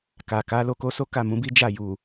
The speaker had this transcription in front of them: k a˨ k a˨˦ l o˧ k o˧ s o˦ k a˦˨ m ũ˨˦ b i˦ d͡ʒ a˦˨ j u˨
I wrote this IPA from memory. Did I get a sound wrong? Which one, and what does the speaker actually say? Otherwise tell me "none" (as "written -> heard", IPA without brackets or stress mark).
none